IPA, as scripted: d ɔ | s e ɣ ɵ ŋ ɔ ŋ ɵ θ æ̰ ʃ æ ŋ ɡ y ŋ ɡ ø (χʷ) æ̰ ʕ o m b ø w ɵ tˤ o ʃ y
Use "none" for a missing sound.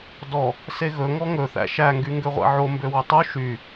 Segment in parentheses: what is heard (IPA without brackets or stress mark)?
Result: ʁʷ